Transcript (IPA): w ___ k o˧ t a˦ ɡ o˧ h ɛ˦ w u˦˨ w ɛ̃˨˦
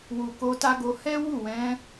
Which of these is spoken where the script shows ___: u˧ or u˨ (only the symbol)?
u˨